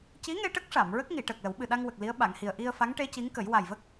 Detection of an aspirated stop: absent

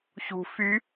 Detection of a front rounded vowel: present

